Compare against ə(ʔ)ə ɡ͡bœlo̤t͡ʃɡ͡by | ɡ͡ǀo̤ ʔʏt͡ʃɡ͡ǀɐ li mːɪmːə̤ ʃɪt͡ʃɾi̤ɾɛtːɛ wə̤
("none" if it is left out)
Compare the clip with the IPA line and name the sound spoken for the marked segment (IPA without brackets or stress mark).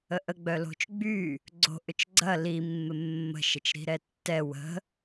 ʔ